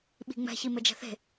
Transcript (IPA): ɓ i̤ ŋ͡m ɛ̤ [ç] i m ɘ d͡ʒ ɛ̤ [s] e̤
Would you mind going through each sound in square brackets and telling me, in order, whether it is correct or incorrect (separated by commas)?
correct, incorrect